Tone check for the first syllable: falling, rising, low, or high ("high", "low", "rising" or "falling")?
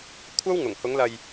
high